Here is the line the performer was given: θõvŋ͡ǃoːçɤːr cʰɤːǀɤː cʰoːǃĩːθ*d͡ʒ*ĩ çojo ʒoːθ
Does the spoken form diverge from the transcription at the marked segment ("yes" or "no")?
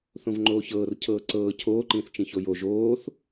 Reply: yes